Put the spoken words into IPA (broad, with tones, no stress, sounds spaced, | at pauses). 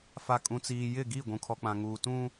f a˨ kʼ ũ˨ t͡s iː˨ j ɪ˦˨ ɡ i˦˨ ɡʷ ũ˨ kʰ ɔ˨ k͡p ã˨ ŋ uː˨ t ũ˦